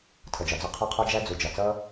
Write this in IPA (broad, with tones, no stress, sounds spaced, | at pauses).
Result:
tʰ ʌ˩ d͡ʒ ɒ˩ d͡z ɒ˥ qʰ ɒ˥ qʰ ɒ˥ d͡ʒ æ˥ d͡z u˩ d͡ʒ ɒ˩ t͡s ʌ˥